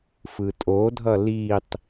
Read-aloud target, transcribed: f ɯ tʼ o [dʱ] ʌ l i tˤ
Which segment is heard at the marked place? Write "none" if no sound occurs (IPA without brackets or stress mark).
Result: dʱ